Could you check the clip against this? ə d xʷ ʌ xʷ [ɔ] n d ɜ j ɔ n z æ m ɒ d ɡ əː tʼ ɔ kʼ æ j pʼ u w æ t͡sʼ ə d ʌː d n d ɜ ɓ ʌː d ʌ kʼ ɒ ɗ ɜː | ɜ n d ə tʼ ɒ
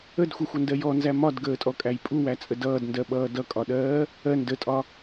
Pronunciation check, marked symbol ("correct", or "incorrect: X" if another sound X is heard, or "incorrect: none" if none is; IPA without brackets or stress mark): incorrect: ʌ